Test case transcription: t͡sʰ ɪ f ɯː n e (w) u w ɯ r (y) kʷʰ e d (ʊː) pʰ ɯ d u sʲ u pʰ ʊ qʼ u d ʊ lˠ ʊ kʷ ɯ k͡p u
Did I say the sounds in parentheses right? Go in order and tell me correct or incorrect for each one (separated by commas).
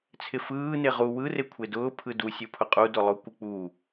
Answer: incorrect, incorrect, correct